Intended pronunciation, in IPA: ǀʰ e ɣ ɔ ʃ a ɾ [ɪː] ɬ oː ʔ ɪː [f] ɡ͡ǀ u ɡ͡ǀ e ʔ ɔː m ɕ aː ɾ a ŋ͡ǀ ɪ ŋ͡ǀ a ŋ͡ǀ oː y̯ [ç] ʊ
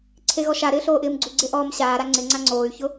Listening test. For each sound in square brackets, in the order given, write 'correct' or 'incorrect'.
correct, incorrect: m, correct

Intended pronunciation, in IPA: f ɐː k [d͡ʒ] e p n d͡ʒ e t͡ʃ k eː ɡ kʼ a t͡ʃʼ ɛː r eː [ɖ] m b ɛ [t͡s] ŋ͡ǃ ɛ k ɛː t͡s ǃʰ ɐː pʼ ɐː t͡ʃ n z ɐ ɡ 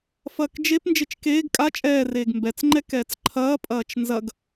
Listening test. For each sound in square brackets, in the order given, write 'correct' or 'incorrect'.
correct, incorrect: ɡ, correct

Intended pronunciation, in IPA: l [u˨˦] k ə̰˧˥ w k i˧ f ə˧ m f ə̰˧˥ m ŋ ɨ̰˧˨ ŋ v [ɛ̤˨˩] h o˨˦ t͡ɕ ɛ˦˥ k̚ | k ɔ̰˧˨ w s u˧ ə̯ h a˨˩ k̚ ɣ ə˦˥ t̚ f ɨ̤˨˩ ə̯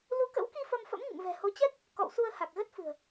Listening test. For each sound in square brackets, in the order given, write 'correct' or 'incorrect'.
correct, correct

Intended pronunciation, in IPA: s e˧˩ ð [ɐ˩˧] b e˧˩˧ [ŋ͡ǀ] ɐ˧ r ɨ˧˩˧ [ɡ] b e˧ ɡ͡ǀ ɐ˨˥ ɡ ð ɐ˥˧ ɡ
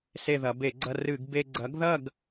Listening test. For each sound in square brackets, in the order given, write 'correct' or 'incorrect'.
correct, incorrect: ɡ͡ǀ, correct

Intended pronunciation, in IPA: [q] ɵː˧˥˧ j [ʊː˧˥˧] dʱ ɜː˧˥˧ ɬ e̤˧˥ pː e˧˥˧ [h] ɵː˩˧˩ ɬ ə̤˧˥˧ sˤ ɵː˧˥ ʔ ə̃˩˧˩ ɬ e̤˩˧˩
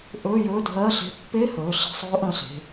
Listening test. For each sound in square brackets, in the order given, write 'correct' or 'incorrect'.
incorrect: ʔ, incorrect: ɵː˧˥˧, correct

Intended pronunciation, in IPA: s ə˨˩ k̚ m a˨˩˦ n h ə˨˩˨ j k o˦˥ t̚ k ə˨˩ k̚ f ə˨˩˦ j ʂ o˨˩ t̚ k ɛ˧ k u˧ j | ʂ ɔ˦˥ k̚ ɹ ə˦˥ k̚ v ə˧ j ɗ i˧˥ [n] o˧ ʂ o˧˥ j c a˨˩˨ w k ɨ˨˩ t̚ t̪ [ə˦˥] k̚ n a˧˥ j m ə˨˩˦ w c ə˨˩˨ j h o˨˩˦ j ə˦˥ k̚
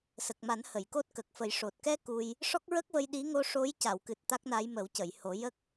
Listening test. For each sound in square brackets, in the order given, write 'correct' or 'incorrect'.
incorrect: ŋ, incorrect: a˦˥

